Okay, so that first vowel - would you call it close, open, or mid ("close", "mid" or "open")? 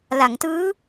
open